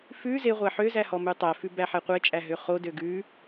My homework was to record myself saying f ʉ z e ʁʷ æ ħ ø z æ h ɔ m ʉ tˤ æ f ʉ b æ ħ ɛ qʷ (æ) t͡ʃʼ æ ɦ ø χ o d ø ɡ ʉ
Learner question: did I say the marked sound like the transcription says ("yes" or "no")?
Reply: no